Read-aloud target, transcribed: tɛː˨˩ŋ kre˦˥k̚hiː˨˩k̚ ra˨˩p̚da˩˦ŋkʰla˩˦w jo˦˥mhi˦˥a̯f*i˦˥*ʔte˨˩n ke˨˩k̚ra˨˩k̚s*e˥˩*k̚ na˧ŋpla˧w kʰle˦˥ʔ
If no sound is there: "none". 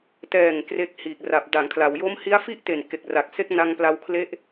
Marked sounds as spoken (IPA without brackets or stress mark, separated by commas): i˥˩, e˦˥